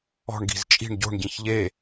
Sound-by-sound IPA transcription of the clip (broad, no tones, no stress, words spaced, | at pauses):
ɔ̤ɳ ɡi̤zt͡ʃʼi̤ɳ ɟo̤ɳ ɟĩçʎe